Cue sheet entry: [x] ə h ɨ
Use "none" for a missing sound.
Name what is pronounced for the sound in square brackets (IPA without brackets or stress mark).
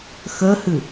x